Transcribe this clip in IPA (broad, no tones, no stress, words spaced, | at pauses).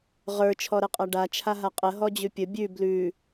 ʁə˞ t͡ʃʰɔɾɛqʼaɖa t͡ʃʰaɦaqʼə ɦɔd͡ʑʉpʲə bʲʉ blʉ